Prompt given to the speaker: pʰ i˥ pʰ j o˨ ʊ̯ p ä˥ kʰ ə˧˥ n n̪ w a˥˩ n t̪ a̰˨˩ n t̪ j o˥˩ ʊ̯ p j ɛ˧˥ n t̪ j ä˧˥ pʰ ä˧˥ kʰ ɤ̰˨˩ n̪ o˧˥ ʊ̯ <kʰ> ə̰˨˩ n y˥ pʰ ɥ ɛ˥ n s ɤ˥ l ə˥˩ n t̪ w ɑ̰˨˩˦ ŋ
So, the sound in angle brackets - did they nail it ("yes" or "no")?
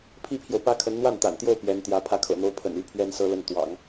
no